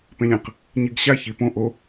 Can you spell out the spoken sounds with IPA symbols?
p ẽ lʲ ɐ̃ q | ɲ i ɡ ɕ a ç i p õ ʔ o

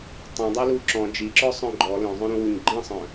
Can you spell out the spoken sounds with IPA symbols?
tˤ ĩ dˤ i l u ǁ ɔ̃ d͡ʒ i ǁ ɔ sˤ œ̃ ɡ͡ǃ ɔ l œ̃ zˤ œ̃ ɾ ũ w u ɲ ɡ͡ǃ ĩ sˤ œ̃

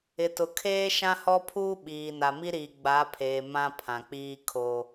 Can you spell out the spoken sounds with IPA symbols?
ɪ˨ t ʊ˨ kʰ eː˦ ʃ ã˦ h ɔ˦ pʰ uː˦ ɓ iː˨ n a˨ m i˦ ɾ iː˨ ɡ͡b a˨˦ pʰ eː˨ m ã˦ pʰ ã˨ k͡p iː˦ kʰ o˦

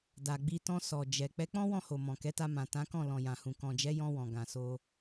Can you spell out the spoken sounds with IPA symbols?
d a˨ ɡ͡b i˧ t ɔ̃˧ s ɔ˨ d͡ʒ ɛ˨ k͡p ɛ˨˦ k͡p ɔ̃˦ w ɔ̃˦˨ h o˨ m ɔ̃˨ k ɛ˨˦ t a˧ m ã˨ t ã˨˦ k ɔ̃˦˨ l ɔ̃˨ j ã˨ h ũ˨ k ɔ̃˨ d͡ʒ ɛ˨˦ j ɔ̃˧ w ɔ̃˨ ɡ ã˨ s o˧

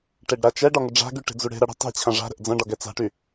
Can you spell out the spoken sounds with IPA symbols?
ʈ e ɖ ɾ a t͡ʃ ɛ ɖ ɒ ŋ ʏ ɖ͡ʐ a̤ ɡ y ʈ e̤ d͡z u ɽ e̤ ɾ ɐ ɽ ə̤ tˤ e̤ t͡ɕʰ ɐ̃ ʐ a̤ ɾ ə̤ ʔ d͡z ɐ̃ ɖ ɒ ɡ ɛ t͡s a̤ ʈ y

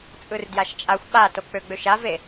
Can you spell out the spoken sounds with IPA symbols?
t͡sʼ ɯ r d j a ʃ t͡ʃʼ a xʷ ɓ a t o k͡p ø ɡ͡b ø ʃ a v e

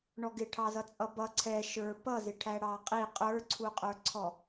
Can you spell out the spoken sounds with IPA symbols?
ɳ ɔ ɡ ɪ ʈʰ ɑ z ʌ t͡sʼ ʌ b ʌ ǀʰ ɛ ʃ ə˞ p ʌ z ɪ ʈʰ æ ɽ ɑ qʼ i qʼ ə˞ ǀʰ u qʼ ə˞ ǀʰ ɔ

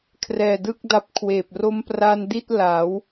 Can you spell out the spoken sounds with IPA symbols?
kʰ r ɛː˨˩ d ɯ˥˩ k̚ d a˦˥ p̚ kʰ w eː˨˩ p̚ r o˧ m p r a˧ n d i˥˩ t̚ l a˩˦ w

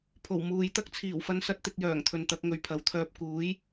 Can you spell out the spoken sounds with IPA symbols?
pʰ o˨˩ w m uː˨ j t̪ ɐ˥ k̚ t͡sʰ iː˨˩ w f ɐ˧ n s ɐ˧ t̚ t̪ ɪ˧ k̚ j œː˨˩ ŋ t̪ʰ ɵ˨ n t̪ ɐ˨˥ k̚ ŋ ɵ˧ ɥ pʰ ɐ˨˥ w t̪ʰ œː˥ p̚ k uː˨˥ j

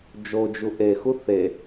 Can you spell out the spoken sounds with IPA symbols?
d͡ʒ o d͡ʒ u ʔ e x u θ e

